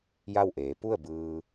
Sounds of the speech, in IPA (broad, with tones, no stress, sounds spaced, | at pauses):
j a˥˨ w ʔ eː˩˧ p u˥˨ ə̯ b ɯː˧